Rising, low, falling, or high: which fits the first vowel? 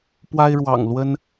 high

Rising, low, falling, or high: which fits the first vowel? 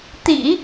low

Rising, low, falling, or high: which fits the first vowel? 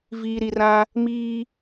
low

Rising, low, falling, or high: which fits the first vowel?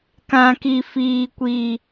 high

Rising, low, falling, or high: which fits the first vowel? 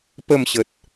falling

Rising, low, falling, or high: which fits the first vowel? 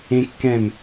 high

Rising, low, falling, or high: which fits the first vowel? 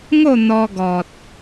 falling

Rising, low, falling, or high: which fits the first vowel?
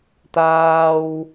high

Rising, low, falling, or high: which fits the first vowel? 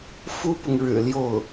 high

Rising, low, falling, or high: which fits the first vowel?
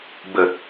low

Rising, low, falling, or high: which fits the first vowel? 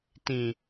low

